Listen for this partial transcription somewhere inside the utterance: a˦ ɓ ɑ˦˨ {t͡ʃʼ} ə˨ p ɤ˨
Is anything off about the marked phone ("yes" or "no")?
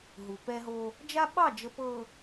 yes